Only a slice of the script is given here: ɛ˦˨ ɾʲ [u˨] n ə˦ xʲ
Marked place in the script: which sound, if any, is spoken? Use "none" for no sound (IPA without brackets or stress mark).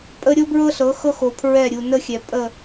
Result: u˨